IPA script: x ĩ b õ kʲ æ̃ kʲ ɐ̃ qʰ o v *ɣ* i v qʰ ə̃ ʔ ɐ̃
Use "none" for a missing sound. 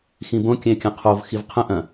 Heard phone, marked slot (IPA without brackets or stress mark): x